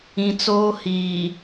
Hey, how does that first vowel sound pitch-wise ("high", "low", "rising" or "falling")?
low